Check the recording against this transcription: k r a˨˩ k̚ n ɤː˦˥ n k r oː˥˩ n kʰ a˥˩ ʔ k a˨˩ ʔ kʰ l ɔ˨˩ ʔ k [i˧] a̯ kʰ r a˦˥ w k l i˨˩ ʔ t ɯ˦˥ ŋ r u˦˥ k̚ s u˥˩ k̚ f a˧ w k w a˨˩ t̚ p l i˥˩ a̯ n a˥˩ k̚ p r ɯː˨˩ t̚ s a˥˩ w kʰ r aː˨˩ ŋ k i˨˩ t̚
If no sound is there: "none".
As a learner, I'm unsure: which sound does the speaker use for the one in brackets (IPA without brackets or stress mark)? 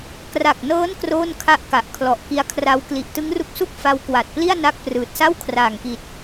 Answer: i˦˥